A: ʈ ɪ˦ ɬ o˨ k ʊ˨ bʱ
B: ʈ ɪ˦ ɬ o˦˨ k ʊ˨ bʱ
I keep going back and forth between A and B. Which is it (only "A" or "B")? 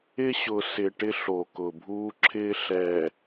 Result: A